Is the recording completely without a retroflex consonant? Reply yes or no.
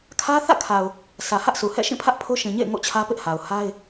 yes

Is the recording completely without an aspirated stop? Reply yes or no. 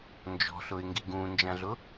yes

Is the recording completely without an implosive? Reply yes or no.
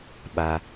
no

